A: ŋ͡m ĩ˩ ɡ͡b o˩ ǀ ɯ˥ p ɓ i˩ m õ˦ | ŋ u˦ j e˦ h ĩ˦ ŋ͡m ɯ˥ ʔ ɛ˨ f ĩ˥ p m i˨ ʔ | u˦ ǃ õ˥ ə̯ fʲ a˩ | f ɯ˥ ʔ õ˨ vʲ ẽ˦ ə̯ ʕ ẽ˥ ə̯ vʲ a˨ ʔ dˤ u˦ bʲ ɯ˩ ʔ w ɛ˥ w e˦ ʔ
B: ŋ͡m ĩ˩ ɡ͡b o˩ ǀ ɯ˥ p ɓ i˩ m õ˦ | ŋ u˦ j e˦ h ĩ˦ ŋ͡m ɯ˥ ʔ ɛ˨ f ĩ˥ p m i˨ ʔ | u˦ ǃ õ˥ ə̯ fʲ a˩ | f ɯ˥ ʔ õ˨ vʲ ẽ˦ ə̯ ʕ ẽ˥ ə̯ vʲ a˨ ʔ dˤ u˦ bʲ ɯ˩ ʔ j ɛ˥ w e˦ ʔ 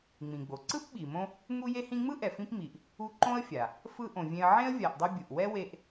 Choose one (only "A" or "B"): A